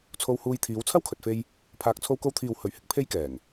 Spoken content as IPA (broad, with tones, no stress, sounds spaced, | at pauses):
t͡sʰ o˧ w h uː˧ j t̪ʰ iː˨˧ w t͡sʰ ɐ˥ w kʰ ɵ˨ t̚ f e˧ j | pʰ aː˨ k̚ t͡sʰ o˧ w k o˧ w t̪ʰ iː˨ w h ɵ˨˩ ɥ h ɪ˧ k̚ pʰ e˥ j k ɛː˨˩ ŋ